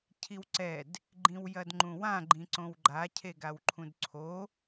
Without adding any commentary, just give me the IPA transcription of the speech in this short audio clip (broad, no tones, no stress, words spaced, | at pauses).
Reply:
cʰiwǀɛd | ɡ͡ǃĩwjɐdŋ͡ǃũwã ɡ͡ǃĩǀõwɡ͡ǃa cʰeɡawǃʰũdǀʰo